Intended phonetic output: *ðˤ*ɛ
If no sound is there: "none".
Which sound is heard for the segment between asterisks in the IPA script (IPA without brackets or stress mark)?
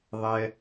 ðˤ